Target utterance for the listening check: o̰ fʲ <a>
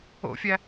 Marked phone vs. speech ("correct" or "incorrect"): incorrect